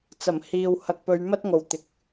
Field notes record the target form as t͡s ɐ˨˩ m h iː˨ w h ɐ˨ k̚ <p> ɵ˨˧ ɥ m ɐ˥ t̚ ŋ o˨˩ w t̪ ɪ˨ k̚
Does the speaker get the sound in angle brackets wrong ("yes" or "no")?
no